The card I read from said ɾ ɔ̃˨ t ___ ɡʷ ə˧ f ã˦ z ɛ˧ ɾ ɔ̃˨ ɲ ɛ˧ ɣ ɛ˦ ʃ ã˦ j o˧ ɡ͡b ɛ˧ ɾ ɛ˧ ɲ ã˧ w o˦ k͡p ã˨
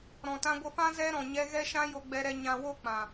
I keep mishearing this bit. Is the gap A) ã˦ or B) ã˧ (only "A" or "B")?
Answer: B